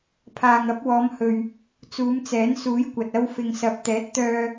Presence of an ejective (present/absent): absent